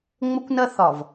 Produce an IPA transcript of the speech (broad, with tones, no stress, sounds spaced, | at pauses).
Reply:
ŋ͡m ə˦ kʷ n ɐ˦ θ ɒ˨ v